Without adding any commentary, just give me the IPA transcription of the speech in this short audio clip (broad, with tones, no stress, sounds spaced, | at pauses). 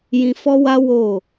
j ĩ˧ f ɔ˦ w a˦ w o˦˨